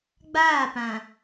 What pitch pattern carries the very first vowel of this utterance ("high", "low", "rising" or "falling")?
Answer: falling